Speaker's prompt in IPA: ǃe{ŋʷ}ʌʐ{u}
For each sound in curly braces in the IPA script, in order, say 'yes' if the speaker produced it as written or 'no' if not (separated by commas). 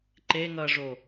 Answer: no, no